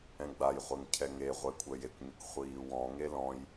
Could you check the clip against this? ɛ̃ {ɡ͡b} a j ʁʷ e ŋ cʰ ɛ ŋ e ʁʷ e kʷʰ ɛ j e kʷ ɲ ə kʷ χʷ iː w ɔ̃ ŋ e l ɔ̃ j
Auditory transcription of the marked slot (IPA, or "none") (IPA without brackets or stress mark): ɡ͡b